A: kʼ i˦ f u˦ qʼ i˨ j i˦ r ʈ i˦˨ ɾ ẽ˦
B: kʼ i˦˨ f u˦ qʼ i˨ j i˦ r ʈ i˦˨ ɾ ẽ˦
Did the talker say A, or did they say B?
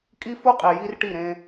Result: A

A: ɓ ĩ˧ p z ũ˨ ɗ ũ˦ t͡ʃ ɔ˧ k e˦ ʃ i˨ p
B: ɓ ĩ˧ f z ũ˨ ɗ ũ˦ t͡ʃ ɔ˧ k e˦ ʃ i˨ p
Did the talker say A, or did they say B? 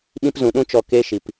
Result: A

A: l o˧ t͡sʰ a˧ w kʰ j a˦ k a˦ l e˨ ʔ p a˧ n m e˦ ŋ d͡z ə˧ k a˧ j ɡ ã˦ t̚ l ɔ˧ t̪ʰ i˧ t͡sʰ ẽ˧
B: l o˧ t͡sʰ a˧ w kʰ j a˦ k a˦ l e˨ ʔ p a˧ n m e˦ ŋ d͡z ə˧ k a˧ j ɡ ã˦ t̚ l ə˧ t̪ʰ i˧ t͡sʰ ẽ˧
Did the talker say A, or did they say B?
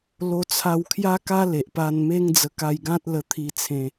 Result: B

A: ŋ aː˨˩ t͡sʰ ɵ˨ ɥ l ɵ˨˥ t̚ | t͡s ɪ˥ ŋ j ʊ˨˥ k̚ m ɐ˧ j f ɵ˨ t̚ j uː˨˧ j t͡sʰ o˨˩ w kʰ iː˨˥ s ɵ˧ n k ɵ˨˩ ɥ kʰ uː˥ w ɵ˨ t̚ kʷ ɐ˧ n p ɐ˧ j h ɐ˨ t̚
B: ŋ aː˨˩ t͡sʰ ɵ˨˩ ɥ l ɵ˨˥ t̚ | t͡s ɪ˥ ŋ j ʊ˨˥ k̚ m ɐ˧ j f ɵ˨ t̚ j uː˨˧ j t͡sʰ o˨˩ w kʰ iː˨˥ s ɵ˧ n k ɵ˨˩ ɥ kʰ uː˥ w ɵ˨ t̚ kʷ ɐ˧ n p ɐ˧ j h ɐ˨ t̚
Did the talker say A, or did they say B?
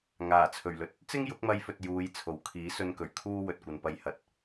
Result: B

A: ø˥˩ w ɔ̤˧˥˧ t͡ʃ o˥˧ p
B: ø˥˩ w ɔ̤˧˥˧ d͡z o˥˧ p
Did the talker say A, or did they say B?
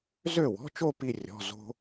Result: A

